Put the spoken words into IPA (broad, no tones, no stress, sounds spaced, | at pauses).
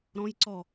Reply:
ɾ ɔ̃ j ǀ ɔ